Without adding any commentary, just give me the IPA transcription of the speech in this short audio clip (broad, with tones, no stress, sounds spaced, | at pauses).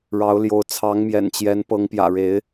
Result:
ɻ ɑ˨˦ ʊ̯ l j o˨˦ ʊ̯ t͡sʰ ɑ˨˦ ŋ m j ɛ̰˨˩ n t͡ɕ j ɛ˨˦ n p ɤ˨˦ ŋ p j ä̰˨˩ ɻ e˨˦ ɪ̯